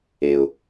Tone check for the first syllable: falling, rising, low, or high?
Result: low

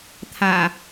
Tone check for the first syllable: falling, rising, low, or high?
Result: low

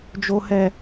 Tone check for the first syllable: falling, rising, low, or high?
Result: low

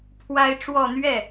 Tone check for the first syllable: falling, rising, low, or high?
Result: high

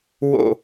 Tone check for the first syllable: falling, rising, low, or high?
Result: falling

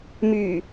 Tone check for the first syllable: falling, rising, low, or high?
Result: low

